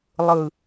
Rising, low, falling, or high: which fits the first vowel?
low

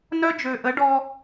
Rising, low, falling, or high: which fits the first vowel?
high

